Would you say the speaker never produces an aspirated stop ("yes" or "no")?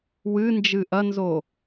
yes